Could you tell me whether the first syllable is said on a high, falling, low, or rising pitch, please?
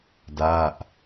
falling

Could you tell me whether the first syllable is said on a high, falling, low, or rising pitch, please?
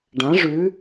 rising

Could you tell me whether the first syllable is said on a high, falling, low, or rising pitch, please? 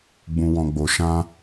low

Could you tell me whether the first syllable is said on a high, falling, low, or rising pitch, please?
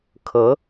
rising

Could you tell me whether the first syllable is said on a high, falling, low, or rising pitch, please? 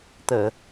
low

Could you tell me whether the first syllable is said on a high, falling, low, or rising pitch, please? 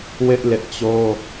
high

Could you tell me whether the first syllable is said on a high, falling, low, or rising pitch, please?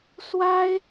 high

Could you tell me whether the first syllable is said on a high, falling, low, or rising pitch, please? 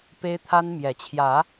high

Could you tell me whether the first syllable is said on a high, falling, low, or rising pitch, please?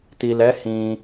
low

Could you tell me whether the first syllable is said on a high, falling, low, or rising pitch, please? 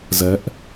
rising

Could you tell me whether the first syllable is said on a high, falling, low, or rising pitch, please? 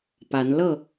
rising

